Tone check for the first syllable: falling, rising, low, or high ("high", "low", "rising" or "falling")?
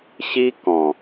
high